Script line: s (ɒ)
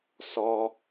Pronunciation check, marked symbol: correct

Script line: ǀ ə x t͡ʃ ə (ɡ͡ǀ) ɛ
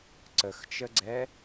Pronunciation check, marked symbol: correct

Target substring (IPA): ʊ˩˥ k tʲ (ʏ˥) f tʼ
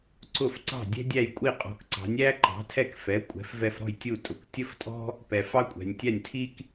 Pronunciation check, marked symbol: incorrect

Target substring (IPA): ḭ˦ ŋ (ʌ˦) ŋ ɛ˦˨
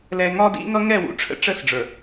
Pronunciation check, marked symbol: correct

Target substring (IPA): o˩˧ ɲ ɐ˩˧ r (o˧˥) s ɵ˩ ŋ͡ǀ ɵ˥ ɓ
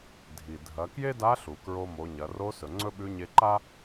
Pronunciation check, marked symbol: correct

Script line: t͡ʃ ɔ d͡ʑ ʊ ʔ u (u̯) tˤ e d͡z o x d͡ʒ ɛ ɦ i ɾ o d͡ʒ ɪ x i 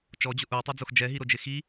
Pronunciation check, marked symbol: incorrect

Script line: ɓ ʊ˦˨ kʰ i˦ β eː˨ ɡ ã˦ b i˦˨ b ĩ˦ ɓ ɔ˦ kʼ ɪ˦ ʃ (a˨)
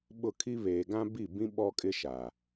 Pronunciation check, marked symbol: correct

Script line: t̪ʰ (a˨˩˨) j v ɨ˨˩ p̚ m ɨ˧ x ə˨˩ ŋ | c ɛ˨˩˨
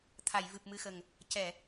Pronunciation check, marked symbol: correct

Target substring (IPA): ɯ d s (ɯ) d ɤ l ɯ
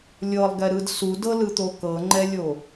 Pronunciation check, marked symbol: incorrect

